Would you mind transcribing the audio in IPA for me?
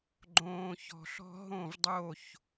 ɡ͡ǃ õː˨ ç ɔ̤˨ ɬ ɔ̤˦ ɦ õ˦˨ v dˤ o˦˨ ç

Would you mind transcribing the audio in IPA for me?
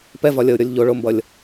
p ɛ v ɒ lʲ ʌ ʊ̯ ɾʲ ɔ lʲ ʎ o ɭ o m b ʌ lʲ

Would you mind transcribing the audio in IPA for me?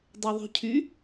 dˤ e ðˤ ṳ cʰ y

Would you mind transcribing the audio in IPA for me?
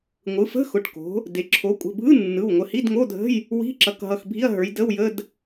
ŋʷ ɯ˩˧ f ə̤˧˥˧ x ʊ˩˧˩ ʈ k o̤˩˧ | d e˩˧ ǁʰ o˩˧ kʷʼ ə̤˩˧˩ bʱ ɯ˧˥˧ nː ɯ˩˧˩ w ŋʷ ə˩˧˩ h i˧˥˧ d ŋ o˧˥˧ dʱ ə̤˧˥˧ j | w i̤˧˥˧ ǁ ʌ˩˧˩ k ɦ ʌ˩˧˩ x bʱ i˧˥˧ ɐ̯ ɦ ə˞˩˧ j d ə˧˥˧ w j ə˧˥˧ d

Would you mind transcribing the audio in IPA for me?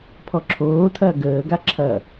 pʰ ɔ ǁʰ oː tʰ ɐː ɡ əː ɡ a ǁʰ ɐ

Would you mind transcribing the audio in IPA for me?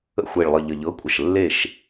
ə̰˦˨ xʷ e˨˩ ɭ lˠ ə˨˩ ʎ ə˨˩ ʎ ɤ˨˥ kʷʼ ə˨˩ ʃ lː e˦˨ ʃ

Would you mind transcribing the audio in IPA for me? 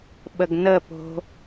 ɓ ə ɡ n ə p o̤

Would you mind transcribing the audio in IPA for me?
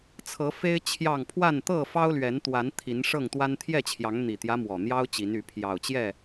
t͡sʰ ɤ˨˦ f e˦ ɪ̯ t͡ɕʰ j ɑ˥˨ ŋ pʰ w a˥˨ n t̪ ɤ˥˨ f ɑ˦ ʊ̯ l ɥ ɛ˨˦ n t̪ w a˨˦ n t̪ʰ i˨˦ n ʂ ɤ˥˨ ŋ t̪ w a˦ n t̪ʰ j ɛ˥˨ t͡ɕʰ j ɑ˨˦ ŋ n̪ i˨˩ t̪ j ä˦ m w ɔ˨˩ n̪ j ɑ˦ ʊ̯ t͡ɕ i˨˦ n y˨˦ pʰ j ɑ˨˩ ʊ̯ t͡ɕ j ɛ˥˨

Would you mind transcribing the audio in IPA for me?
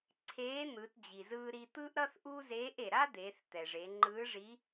ǀʰ eː˧˥ n̪ ɯː˩˧ t d͡ʑ i˩ z ɯː˧ ɾ i˧ t̪ ɯ˥ ʔ ɾ ʌ˥ θ ʔ u˥ z eː˧˥ ʔ e˩ ɾ a˥ d̪ eː˩˧ θ t̪ ɛ˩ ʐ e˩˧ ŋ͡ǃ ɯː˧˥ ʐ i˧˥

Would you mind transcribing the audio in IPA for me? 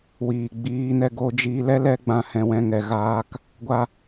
w iː˨ ɡ͡b iː˧ n ɛ˧ ɡ o˧ d͡ʒ iː˧ l ɛ˦ l ɛ˦ ɡ͡b ã˧ h ɛ̃˨ w ɛ̃˧ ŋ ɛ˨ ɣ aː˨ k | ɡʷ a˧

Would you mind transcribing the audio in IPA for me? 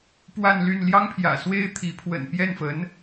p w a˥˧ n l y˥˩ n l j ɑ˥ ŋ pʰ j ä̰˨˩ s w e˥ ɪ̯ t̪ʰ i˧˥ pʰ w ə̰˨˩ n p j ɛ˥˩ n f ə˧˥ n

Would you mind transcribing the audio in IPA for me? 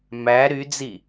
m æ ɾ y d͡z i

